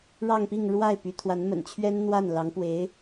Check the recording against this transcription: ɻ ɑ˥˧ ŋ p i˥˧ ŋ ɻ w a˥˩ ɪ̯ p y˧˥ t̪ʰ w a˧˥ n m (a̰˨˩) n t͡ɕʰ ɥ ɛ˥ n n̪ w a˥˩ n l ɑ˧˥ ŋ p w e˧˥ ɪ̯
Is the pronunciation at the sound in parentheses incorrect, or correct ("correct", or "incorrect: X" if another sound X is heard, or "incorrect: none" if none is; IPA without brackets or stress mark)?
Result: incorrect: ə̰˨˩